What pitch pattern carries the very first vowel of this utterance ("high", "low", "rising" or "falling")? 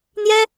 high